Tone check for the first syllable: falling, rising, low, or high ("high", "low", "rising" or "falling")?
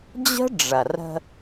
high